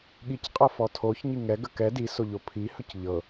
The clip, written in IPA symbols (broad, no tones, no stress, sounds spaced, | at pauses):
ɠ i c qʼ ɤ f ɔ tʰ o ç ɲ i ŋ ɛ ɡ ə k ɛ d i s o ʎ o pʰ i h ɵ c ʎ ɤ